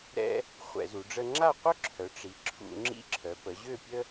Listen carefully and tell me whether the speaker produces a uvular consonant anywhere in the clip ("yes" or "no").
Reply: yes